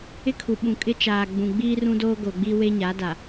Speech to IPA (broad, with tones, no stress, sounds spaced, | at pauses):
ɪ˦ kʰ u˨ ɓ ũ˨ kʼ ɪ˦ t͡ʃ aː˨ ɡ͡b ũ˨ ɡ͡b iː˦ r ũ˦ d oː˦ ɡ o˨ ɡ͡b i˦ w e˦ ɲ a˨˦ d a˨